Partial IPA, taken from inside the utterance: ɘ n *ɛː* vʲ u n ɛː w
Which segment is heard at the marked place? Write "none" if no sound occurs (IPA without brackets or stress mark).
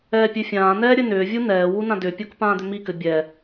ʏː